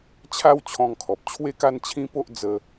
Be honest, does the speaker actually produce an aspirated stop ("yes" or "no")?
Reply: yes